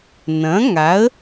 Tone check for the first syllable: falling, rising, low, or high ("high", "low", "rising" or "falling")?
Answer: rising